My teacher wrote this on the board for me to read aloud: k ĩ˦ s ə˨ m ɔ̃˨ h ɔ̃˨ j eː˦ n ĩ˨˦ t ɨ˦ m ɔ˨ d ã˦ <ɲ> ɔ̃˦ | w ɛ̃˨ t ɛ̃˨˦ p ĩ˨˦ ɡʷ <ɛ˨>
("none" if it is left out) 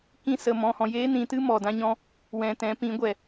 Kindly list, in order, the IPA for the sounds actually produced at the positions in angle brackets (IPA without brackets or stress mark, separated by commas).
ɲ, ɛ˨